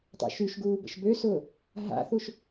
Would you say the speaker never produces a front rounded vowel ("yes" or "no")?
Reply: no